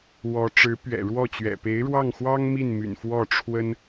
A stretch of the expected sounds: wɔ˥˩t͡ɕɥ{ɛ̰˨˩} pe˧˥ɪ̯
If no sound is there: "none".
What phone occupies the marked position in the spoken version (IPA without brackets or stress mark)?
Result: ɛ̰˨˩